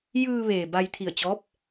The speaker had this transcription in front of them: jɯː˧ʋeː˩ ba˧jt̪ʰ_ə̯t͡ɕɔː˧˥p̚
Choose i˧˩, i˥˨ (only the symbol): i˧˩